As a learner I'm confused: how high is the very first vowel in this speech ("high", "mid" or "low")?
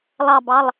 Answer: low